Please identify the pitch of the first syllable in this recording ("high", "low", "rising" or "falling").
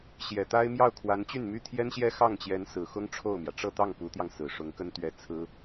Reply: low